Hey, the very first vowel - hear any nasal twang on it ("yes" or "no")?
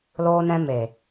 no